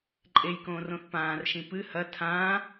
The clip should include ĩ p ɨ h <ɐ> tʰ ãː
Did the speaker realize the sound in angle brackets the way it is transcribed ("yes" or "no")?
yes